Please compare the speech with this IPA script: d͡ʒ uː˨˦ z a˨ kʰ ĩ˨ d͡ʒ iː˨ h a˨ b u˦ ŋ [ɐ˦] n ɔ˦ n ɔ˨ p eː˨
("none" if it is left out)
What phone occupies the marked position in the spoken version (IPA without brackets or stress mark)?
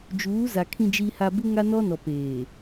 a˦